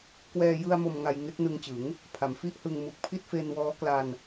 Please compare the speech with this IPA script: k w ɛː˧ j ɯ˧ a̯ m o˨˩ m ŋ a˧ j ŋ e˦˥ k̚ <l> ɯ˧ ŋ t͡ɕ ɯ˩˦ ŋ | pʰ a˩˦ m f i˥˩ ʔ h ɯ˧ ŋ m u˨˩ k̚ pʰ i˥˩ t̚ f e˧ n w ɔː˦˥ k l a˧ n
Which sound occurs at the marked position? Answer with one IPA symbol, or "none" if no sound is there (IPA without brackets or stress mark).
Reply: n